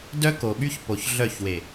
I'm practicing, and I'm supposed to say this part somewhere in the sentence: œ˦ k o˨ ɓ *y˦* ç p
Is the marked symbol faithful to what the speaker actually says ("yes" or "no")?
yes